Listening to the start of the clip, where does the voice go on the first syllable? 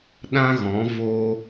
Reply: high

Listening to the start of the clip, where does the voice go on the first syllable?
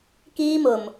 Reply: high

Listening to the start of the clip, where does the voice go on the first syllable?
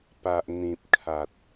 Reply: low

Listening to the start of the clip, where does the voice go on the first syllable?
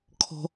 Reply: high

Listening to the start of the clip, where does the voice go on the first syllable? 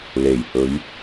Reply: low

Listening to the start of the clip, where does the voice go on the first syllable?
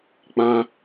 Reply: high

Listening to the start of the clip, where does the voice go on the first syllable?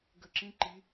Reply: falling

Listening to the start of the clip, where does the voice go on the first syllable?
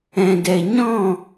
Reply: low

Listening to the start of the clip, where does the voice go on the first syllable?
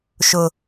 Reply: high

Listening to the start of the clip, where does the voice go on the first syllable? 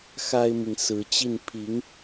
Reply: high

